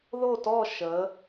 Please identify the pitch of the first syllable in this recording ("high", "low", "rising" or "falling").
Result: falling